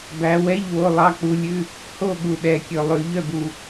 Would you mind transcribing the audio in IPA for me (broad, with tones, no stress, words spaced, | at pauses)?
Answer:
bæ˨˦wɛ˧˥˧ʎ wo˧˥˧lˠɑ˧˥˧k͡pu˨˦lʲʉ˧˥˧ | ho˥˨ ɠu˨˩ɗɛ˨˩kʲɵ˨˩ lˠʉ˧˩˧ʎœ˥˨bu˨˩